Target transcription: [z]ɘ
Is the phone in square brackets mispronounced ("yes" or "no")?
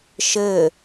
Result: yes